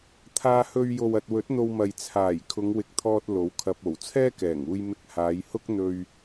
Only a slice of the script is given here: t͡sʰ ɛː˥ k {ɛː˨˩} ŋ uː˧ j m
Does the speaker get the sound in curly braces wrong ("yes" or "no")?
no